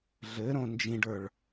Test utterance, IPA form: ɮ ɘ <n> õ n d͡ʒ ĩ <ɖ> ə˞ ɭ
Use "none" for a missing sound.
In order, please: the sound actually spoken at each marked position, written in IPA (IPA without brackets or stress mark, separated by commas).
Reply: ɾ, ɖ